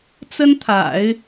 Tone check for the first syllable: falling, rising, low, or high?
high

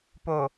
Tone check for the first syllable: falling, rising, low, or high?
low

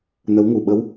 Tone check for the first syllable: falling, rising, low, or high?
rising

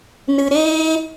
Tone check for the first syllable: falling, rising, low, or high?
low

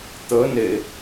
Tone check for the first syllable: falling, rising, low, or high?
rising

